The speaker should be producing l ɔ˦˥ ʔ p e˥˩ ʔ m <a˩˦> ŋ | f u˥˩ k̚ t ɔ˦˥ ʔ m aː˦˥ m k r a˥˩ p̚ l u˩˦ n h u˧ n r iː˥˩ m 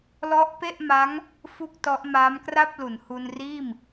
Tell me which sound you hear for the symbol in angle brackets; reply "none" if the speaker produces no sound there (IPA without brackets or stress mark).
a˦˥